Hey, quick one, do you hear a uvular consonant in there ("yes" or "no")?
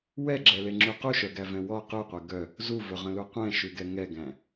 yes